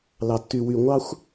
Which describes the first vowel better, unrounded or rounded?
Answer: unrounded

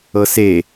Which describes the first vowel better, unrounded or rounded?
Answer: unrounded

